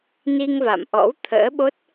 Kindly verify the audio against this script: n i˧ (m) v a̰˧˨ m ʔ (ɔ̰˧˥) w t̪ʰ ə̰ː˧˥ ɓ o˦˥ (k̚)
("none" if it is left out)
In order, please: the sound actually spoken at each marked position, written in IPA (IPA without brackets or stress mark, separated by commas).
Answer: ŋ, ɔ̰˧˥, t̚